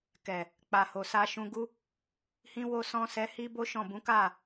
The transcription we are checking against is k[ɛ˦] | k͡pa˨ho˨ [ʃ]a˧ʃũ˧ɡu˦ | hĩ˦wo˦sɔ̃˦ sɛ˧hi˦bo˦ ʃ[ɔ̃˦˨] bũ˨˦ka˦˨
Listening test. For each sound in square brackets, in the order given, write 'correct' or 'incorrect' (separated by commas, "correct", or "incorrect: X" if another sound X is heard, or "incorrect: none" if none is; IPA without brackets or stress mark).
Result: incorrect: ɛ˨, incorrect: s, correct